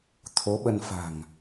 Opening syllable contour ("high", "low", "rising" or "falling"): rising